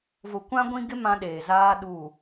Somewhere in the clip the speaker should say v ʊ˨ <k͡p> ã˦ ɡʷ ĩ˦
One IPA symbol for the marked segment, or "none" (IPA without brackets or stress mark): kʷ